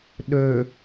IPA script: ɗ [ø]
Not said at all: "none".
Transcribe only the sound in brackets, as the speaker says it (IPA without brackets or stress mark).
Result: ø